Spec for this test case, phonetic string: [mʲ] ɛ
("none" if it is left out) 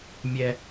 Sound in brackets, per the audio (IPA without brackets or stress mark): mʲ